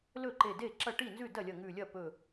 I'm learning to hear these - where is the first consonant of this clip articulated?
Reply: tongue tip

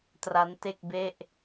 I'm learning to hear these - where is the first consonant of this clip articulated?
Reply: tongue tip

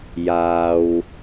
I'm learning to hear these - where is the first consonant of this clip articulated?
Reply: palate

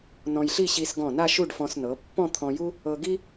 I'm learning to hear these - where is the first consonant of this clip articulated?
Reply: tongue tip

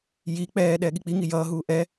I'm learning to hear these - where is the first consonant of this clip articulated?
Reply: palate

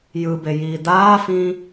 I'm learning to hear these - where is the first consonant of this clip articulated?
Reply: palate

